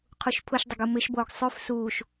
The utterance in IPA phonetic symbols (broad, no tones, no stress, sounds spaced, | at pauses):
qʰ u ʃ pʰ ʊ ʃ dˤ ɪ ɡ u m ɪ ʃ b oː ɡ sˤ ʉ f s uː ʃ